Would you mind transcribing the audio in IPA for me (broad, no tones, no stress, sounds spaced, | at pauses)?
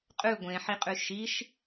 qʼ ʉ ɡʷ ẽ ħ i qʼ ʉ ʃ i ʃ